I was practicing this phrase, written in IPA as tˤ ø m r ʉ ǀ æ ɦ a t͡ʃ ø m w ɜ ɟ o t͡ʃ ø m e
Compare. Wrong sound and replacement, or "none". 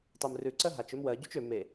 æ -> ɜ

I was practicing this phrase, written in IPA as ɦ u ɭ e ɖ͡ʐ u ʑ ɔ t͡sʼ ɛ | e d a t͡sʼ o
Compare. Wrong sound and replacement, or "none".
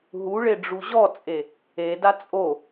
ɛ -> e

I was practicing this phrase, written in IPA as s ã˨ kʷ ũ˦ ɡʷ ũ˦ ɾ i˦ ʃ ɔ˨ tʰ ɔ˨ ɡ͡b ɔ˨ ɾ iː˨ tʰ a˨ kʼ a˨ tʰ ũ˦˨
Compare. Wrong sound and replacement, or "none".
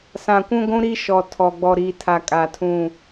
none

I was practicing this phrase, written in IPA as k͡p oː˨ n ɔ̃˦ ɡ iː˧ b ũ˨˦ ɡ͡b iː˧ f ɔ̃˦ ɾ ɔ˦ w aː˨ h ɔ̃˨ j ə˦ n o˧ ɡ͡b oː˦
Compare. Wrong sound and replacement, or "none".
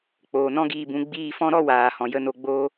none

